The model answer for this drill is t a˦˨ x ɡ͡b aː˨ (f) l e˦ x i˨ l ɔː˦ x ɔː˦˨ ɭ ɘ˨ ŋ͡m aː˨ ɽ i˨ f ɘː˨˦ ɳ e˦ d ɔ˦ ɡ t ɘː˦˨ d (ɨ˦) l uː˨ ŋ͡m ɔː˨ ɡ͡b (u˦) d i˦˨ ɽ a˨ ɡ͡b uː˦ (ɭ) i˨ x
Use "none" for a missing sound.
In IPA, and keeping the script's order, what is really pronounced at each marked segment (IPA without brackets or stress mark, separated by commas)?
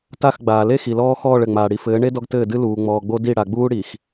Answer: none, ɨ˦, o˦, ɽ